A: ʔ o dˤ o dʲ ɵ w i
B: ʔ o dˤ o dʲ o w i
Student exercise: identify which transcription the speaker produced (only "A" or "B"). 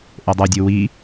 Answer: B